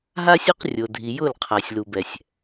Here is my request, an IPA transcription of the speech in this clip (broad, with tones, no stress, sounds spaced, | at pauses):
ɦ a˦ sʲ o˦ q rʲ o˨ dʱ i˨ j ʊ˦˨ l qʰ a˨ sʲ l u˨ b ɛ˨ sʲ